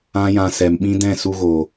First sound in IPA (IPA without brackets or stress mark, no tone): ã